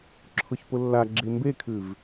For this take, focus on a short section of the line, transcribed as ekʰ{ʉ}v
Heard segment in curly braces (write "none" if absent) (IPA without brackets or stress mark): ʉ